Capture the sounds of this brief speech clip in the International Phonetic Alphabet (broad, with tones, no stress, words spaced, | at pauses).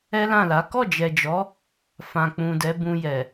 ɛ˦lã˦˨la˨˦ kɔ˦˨d͡ʒɛ˨d͡ʒɔ˨˦ | fã˨k͡pũ˨dɛ˨˦ bũ˧jɛ˨